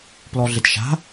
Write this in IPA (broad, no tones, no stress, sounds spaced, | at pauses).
p l ɔ ɮ ɪ t ʃ a̤